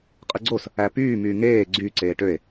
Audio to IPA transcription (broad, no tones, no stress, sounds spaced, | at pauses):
qʼ ɯ ɡ͡ǀ o s | æ p yː m yː ŋ eː ɡ͡ǀ y ǀ eː ʈ ø e̯